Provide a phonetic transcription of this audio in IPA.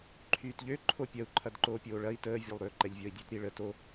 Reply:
ǃʰ yː t ʎ ø ǃʰ o pʲ ɐ u̯ ǃʰ ɐ d ǃ oː pʲ oː ɭ ɐ i̯ t əː vʲ e lˠ ɾ ø ǃ ɛ ʎ vʲ ɔ i̯ dʲ e t ɾ i ɭ ə t o

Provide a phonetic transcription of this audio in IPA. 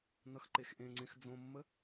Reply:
n ʌ x ǃ e x ʔ ẽ ŋ͡ǀ ẽ x d͡z õ mː ə

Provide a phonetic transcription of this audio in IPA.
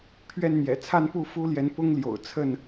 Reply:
pʰ ɥ ɛ˥˨ n n̪ j ɛ̰˨˩ t͡sʰ a˥˨ n p u˥˨ f u˦ l j ɛ˨˦ n p ʊ˦ ŋ l j o̰˨˩ ʊ̯ t͡sʰ ə˥˨ n

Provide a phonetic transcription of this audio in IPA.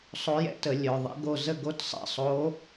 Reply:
sˤ o˧˥ j ɛ̰˥ t ə˧˩˧ lʲ œ˨˩ ðˤ ḛ˧˥ ɡ o˦˨ z ə˦˨ ɡ o˧˥ t sˤ ɛ̰˦˨ sˤ o˧˥

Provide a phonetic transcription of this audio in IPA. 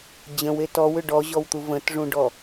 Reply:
d͡ʑ ə̃ w e t ɔ w ʏ ɖ ɔ ʑ ɔ w t̪ u v ə̃ t ʐ ũ ɖ ɔ

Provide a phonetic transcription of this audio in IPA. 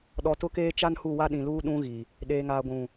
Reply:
ɗ ɔ˨ t ʊ˦ k eː˦ t͡ʃ a˦ n h u˦˨ w a˦ ɗ ĩ˨ l uː˦ ɗ ũ˦ ɣ i˨ | ɗ eː˨ ŋ aː˨ ɡʷ ũ˨

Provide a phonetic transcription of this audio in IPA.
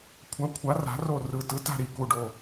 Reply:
kʷʰ a˨˥ kʷʰ a˨˥ r a̤˨˥ r o˦˨ r ɯ˨˩ t ɯ˨˥ t a̤˦˨ ɾ i˨˩ k u˦˨ ɖ o˦˨

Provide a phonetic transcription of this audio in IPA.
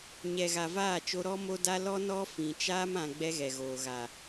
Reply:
ɲ ɛ˨ ɣ a˨ v aː˦˨ t͡ʃ o˦ ɾ ɔ˦ m o˦ d a˦ l ɔ˦ n ɔ˦ f ĩ˨ t͡ʃ aː˦ m ã˨ ɡ͡b ɛ˦ ɣ ɛ˨ ɣ oː˨ ɣ a˨

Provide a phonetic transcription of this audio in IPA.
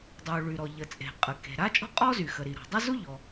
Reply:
dˤ u˩ ɭ y˩ ɾ ɔ˩ ʎ ə˩ t͡sʼ e̤˩ qʼ ə˩ k e̤˩ ɾ a˥ t͡ʃʼ ɔ̤˥ qʼ ɔ˥ z y˩ x ə˩ ɾ i˩ ɾ ɔ̤˩ dˤ ə˥ z u˥ ʎ ɔ˩

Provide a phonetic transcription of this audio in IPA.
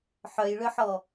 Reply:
ħ œ j ɭ ʏ ħ ɔ

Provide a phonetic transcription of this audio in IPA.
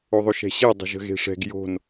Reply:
o ðˤ o ʃ ɛ̤ ɕ e dˤ ə̤ ʒ ə̤ ɣ e̤ ʂ ɛ̤ ɡ j o̤ n

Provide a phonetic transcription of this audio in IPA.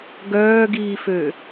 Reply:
ɡ œː ɡ iː f ø

